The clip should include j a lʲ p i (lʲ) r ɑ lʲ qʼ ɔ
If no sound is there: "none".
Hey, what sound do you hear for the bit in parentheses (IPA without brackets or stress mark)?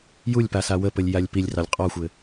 lʲ